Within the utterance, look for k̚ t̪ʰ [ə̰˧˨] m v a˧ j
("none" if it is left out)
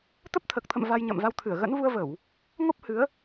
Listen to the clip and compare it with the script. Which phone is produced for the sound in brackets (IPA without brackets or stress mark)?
ə̰˧˨